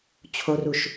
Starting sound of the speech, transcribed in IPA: t͡ɕʰ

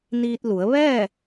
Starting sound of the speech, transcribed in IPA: n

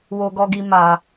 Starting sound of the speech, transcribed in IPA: w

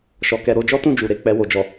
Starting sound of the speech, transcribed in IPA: ʃ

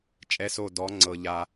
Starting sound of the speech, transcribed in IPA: t͡ʃʼ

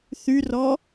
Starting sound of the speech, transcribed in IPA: θ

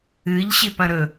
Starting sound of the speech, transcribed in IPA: ɨ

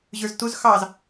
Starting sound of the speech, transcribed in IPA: ʑ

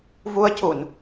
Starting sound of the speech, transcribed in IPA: v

